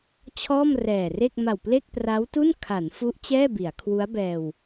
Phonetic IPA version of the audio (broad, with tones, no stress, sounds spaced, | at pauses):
t͡ɕʰ ɔː˥˩ m r ɛː˨˩ r e˥˩ k̚ m a˨˩ w p l e˥˩ k̚ p r a˦˥ w t u˥˩ n kʰ a˩˦ n f u˦˥ ʔ t͡ɕ ɛː˥˩ b i˩˦ a̯ kʰ w u˦˥ a̯ b ɛː˧ w